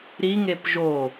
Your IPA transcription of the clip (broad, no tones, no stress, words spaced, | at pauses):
ɾiŋep ʒo